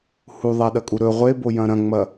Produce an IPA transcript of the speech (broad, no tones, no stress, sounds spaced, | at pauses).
h u ðˤ a ɗ ɐ kʼ u ɾ ɵ ʁʷ e b o j ɐ̃ ɾ ɐ̃ ŋ͡m ɐ